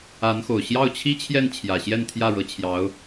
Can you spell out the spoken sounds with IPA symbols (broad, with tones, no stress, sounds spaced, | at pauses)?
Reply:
a˧˥ n x o˨˩ ʊ̯ ɕ j ɑ˥˩ ʊ̯ t͡ɕʰ i˥ t͡ɕʰ j ɛ˥˩ n t͡ɕʰ j ä˨˩ ɕ j ɛ˥˧ n t̪ʰ j ä˥˩ ɻ ɤ˧˥ t͡ɕʰ j ɑ˧˥ ʊ̯